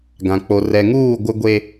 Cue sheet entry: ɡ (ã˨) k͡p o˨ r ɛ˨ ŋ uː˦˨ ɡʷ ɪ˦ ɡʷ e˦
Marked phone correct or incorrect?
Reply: correct